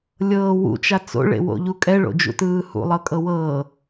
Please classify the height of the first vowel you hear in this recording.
mid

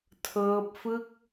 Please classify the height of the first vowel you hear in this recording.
mid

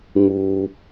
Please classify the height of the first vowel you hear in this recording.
high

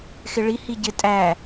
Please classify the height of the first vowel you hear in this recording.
high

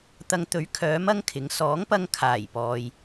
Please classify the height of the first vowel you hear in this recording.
low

